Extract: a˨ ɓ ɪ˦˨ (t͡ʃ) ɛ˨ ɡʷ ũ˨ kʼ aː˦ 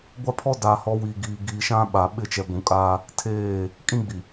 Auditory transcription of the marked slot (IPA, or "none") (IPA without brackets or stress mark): t͡ʃ